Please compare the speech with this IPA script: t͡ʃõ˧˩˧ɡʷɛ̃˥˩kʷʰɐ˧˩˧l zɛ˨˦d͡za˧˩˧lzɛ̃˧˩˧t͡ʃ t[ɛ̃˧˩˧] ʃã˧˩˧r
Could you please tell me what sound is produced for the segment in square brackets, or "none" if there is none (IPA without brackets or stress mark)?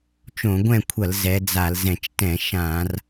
ɛ̃˧˩˧